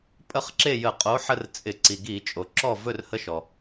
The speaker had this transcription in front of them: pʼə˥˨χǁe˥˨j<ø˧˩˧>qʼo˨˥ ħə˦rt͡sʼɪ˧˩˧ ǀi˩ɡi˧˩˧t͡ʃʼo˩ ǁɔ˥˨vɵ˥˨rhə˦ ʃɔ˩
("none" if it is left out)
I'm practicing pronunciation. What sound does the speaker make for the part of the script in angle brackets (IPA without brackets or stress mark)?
ə˧˩˧